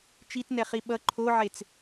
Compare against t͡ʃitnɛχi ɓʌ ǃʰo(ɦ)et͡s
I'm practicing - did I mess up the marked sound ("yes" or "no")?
yes